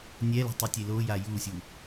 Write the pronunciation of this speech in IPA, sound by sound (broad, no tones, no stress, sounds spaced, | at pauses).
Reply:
nʲ ɛ l o̤ tˤ i tʲ e l o j a j u sʲ u